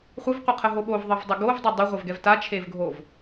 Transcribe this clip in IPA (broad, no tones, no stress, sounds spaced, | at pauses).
χʷ ɨ v qʷ ɨ qʰ ə ɦ o ɓ o v ðˤ ɜ v dˤ ə ɡ o v dˤ ɪ dˤ a ʁʷ e v ɡ ɛ v t a t͡ʃʰ e v ɡʱ o v